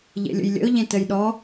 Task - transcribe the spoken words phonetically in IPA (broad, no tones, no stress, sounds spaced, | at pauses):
ʎ ḛ lʲ ə̰ j lʲ ə̰ ʊ̯ ʎ ẽ t ə j ɗ ɔ